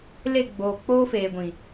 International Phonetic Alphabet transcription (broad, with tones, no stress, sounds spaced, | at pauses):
l e˦˨ ɡ͡b oː˨ k͡p oː˦ f eː˨ ɡʷ ĩ˨